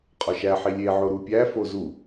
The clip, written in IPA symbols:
qʼ ɒ ʃ æ ħ i lʲ e ʕ o ɾ u pʲ æ f o z u

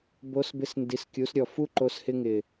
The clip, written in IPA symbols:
b o˧˥ s b ɪ˧˥ s n d i˩˥ s kʲ u˩˥ s ɾʲ ɔ˨˩ f u˥ ǃ o˧˥ s h ɪ˥ ŋ ɪ˨˩

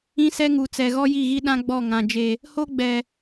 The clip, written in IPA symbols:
ĩ˦ s ɛ˦ ŋ u˨ t͡s ɛ˨ ɣ ɔ˦ j i˦˨ ɣ i˦ ɗ ã˦ ɡ͡b ɔ˦˨ ŋ ã˨ d͡ʒ e˨ | h o˦ ɡ͡b ɛ˨

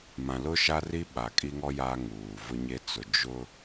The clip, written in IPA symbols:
m ã˨ l ʊ˦ ʃ a˦ r i˦ ɓ a˨ kʼ i˦ ŋ ɔ˦ j a˦ ŋ uː˨ v ʊ˦ ɲ e˦ t͡s ʊ˨ d͡ʒ ʊ˦

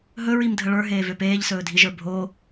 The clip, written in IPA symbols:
ɦ ɵ ɹ i m dʱ ə ɭ ə˞ ɦ eː v ø p eː ʎ s ɵː dʱ i ʒ ə˞ bʱ o

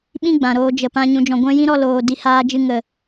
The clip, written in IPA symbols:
ɓ ĩ˦ ɡ͡b ã˨ ɾ oː˧ d͡ʒ ə˨ p ã˧ ɲ ũ˨ d͡ʒ ɔ̃˨ ɡʷ ɛ̃˧ j ĩ˦ ɾ ɔ˧ l oː˨ d i˧ h aː˧ d͡ʒ ɨ˧ ŋ ə˨

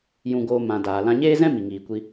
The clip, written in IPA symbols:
j ũ˧ ɡ oː˧ m ã˨ d aː˨ l ã˧ ɲ eː˦ z ɛ̃˦ m i˨ ŋ iː˨ kʷ i˧

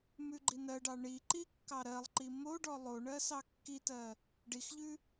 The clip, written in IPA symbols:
m ʉ ɡ͡ǃ i n ɜ ɖ ɑ ɳ i ǃ i kː ɑ ɾ ɜ lˠ ǃ i m o ɖ ɔ lˠ o ɳ ɜ s ɑ kː i t ɜ | ɖ i x ʎ ʉ

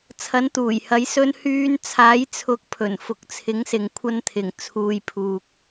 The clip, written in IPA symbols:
t͡sʰ ɐ˨˥ n t̪ uː˨˩ j h ɐ˨˥ j s ɵ˨˧ n h yː˨˧ n t͡sʰ aː˨˥ j t͡sʰ ʊ˨˥ k̚ pʰ ɵ˨˩ n f ʊ˨ k̚ t͡sʰ ɪ˨˥ ŋ s ɪ˨ ŋ kʷʰ ɐ˧ n t̪ʰ ɪ˨˩ ŋ t͡sʰ uː˨ j pʰ uː˨ k̚

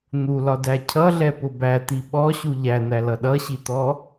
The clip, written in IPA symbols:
n̪ u l ɒ d æ cʰ ʌ ɮ ɛ p ʊ b æ t̪ i ɓ ɔ ɕ u ʎ æ n̪ æ l ʌ ɗ ʌ ɕ i t̪ ɔ

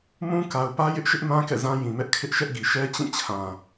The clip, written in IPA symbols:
m ũ˦ k a˨ ʊ̯ p ä˦ j ɪ˦ ʔ ʃ ɪ˦ ʔ m ã˦ k ɛ̰˦˨ z ã˦ j ĩ˨ m ɛ˦ ʔ kʰ ɪ˦ ʔ ʃ ɛ˦ ʔ ɡ i˨ ʃ ɛ˦ t͡ɕ ĩ˦˨ t͡ɕʰ ã˨

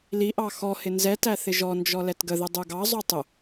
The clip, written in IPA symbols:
l i ʔ ɑ x ɔ h ɪ n z ɛ t æ θ ɪ ʒ ɔ n d͡ʒ ɔ l ɛ t ɡ ə ð ɪ dˤ u ɡ ɑ zˤ u tˤ ʊ

